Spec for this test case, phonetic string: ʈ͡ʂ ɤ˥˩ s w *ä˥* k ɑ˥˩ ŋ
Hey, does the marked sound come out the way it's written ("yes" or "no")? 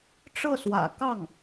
no